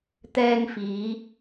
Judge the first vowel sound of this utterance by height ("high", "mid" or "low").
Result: mid